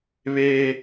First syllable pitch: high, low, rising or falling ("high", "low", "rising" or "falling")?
high